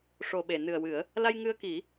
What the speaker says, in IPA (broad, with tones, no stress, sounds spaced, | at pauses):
ʂ o˨˩ ɓ e˨˩˨ n ɨ˨˩ ə̯ w ɨ˨˩˦ ə̯ | l a˧ j ŋ ɨ˧ ə̯ k i˨˩˦